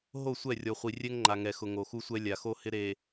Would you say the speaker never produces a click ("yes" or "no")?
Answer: no